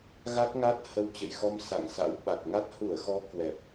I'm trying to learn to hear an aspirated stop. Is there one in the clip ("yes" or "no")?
no